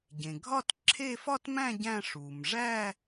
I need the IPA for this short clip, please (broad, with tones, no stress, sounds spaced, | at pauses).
ɟ ẽ˩ ɡʱ ɒ˥˧ t ǁʰ e˥˧ f ɒ˥˧ t m æ̃˥˧ ɟ æ̃˥˧ ʂ u˩ m ʐ æ˥˧